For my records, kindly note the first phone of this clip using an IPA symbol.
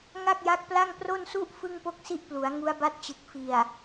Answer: ŋ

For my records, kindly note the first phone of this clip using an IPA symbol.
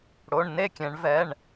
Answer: ɽ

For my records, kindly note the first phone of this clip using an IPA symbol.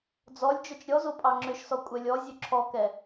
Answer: d͡z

